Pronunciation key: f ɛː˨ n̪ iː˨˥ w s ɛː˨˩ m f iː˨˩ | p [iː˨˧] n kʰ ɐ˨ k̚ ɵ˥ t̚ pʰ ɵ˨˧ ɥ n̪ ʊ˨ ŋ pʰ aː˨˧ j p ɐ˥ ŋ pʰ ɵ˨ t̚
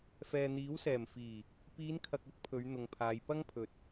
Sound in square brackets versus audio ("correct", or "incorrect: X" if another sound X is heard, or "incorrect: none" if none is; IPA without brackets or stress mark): correct